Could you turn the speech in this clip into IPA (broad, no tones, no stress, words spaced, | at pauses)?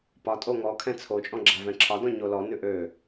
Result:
pɒtʼo ŋɔkʰɛ̃ t͡sʰot͡ʃʼɔ̃ ɡ͡ǁavɛ̃ǁʰɒdɔ̃ ɲolɔnʉ ʔø